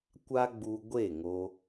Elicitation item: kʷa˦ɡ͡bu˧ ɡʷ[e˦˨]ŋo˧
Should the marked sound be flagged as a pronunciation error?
no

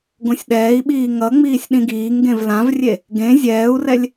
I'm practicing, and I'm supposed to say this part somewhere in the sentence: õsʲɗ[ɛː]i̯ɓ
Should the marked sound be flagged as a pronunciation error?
no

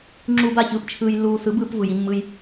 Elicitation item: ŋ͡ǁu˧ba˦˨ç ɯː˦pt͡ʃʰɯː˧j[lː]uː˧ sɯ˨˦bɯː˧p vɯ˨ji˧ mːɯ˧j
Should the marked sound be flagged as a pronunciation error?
no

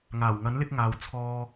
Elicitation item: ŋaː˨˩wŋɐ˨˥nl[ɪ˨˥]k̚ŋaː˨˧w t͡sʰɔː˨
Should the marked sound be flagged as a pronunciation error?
yes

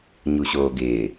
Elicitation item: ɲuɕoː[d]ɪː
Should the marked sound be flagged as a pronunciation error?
yes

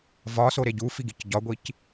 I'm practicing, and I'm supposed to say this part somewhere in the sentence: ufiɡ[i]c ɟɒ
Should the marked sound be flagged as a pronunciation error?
no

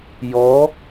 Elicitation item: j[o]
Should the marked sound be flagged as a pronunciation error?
yes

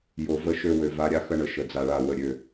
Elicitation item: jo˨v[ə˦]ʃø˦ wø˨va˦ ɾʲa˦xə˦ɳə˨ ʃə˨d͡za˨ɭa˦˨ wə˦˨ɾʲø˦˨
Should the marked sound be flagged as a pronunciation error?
yes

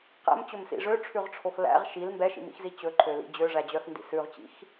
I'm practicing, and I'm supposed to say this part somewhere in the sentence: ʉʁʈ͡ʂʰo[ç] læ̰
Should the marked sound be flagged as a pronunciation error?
yes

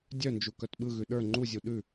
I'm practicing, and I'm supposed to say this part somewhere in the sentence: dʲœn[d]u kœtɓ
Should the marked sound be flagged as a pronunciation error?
yes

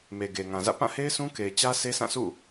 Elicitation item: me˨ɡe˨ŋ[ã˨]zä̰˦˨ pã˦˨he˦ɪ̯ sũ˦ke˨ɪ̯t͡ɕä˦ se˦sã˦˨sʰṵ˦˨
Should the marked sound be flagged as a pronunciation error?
no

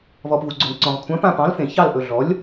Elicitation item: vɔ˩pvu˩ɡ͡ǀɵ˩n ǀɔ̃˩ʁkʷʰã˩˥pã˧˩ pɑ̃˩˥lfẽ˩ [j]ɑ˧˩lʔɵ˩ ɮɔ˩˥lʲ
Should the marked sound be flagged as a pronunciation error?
yes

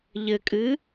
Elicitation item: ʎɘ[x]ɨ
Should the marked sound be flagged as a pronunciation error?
yes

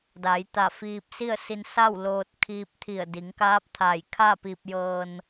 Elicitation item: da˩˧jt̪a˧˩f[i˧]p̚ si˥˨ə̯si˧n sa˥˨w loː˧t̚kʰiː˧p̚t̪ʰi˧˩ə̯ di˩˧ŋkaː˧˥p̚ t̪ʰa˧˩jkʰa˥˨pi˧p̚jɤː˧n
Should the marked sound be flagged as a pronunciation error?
yes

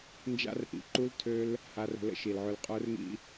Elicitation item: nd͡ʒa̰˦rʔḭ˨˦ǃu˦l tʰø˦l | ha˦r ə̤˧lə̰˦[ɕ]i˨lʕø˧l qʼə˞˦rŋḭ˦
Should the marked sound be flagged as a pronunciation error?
yes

